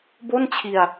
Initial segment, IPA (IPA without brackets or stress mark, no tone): b